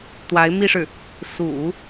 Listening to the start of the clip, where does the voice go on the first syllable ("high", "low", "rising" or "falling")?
rising